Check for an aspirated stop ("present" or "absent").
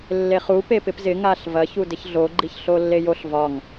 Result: absent